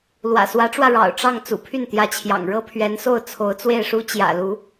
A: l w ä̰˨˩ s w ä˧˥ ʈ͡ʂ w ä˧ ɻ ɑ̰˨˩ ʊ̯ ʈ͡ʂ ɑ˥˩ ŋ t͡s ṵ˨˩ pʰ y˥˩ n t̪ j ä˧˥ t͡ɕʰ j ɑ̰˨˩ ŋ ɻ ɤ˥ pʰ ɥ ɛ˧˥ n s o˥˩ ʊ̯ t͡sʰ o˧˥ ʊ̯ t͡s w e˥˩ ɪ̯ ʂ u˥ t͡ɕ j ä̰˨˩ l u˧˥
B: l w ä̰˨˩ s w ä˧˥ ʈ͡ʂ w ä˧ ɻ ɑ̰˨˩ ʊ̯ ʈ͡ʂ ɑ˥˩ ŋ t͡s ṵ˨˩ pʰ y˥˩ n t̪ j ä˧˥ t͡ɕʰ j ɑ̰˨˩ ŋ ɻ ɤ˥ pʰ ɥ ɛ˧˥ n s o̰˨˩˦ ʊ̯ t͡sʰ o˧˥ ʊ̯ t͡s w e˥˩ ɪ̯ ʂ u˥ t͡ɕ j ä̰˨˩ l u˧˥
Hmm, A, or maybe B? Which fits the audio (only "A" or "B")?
A